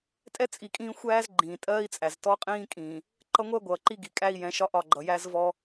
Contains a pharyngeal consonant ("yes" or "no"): no